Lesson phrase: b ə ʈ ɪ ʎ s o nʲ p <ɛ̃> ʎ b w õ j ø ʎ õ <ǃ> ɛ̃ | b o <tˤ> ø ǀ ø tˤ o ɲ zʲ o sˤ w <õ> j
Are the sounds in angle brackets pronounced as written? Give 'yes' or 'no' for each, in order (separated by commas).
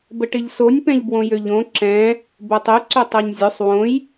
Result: yes, no, yes, yes